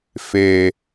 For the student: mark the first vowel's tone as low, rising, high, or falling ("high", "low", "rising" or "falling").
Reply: low